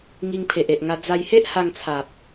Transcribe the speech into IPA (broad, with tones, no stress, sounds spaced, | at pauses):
ŋ i˧ ŋ pʰ e˨ ʔ e˨ ʔ ŋ a˧ d͡z a˧ j h e˦ ʔ h a˧ ŋ t͡sʰ a˨ p̚